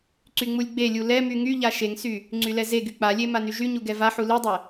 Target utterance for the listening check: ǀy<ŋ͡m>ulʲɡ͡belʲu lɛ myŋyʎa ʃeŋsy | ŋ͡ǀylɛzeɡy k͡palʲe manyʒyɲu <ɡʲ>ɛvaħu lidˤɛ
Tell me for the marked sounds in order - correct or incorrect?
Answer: correct, incorrect: ɡ

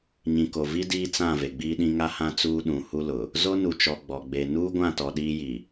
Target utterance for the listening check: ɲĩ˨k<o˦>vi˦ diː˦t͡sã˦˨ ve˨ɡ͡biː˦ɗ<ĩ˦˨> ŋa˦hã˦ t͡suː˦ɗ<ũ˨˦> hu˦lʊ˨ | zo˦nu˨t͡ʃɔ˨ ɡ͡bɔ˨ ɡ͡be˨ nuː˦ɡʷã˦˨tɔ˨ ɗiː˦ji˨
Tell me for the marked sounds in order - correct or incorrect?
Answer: incorrect: o˨, incorrect: ĩ˦, correct

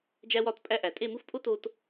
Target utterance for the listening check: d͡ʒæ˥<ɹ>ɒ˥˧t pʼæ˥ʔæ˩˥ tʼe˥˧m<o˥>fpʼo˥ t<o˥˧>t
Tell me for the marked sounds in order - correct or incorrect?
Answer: incorrect: w, incorrect: u˥, incorrect: o˥

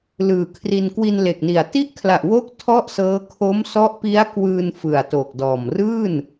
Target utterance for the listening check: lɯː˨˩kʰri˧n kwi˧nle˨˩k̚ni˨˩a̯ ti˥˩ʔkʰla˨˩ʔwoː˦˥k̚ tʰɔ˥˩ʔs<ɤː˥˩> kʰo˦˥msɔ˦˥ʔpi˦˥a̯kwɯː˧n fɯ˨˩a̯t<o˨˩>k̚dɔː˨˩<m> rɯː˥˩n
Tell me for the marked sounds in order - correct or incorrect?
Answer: incorrect: ɤː˦˥, correct, correct

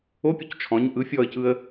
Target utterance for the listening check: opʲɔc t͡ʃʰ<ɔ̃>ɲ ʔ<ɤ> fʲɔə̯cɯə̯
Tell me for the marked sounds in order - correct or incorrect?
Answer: correct, incorrect: ɯ

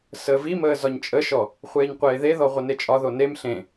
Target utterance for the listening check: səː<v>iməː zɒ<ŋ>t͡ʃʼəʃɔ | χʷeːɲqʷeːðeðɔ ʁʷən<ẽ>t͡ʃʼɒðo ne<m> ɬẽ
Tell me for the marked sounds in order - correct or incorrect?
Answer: correct, incorrect: ɲ, incorrect: e, correct

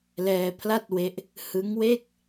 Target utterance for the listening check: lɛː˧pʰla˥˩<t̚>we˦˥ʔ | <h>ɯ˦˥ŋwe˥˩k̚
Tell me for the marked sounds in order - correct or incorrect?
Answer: correct, correct

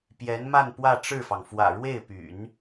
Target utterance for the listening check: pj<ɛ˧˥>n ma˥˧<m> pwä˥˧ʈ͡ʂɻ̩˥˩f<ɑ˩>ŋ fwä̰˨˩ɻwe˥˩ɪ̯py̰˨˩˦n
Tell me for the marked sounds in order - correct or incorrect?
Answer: correct, incorrect: n, correct

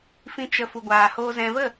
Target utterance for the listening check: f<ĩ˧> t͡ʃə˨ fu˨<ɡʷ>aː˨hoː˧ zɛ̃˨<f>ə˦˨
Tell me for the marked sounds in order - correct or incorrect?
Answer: incorrect: ĩ˨, correct, incorrect: v

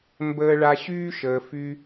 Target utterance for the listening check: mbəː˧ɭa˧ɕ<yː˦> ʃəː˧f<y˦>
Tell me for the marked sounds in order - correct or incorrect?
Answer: correct, correct

